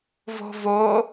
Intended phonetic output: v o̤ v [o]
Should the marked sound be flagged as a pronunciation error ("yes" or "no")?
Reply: no